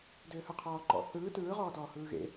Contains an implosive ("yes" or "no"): no